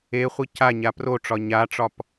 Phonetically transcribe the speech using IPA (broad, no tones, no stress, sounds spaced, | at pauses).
e χʷ i c a ɲ a p r o ʈ͡ʂ ɒ ɲ a ʈ͡ʂ ɒ p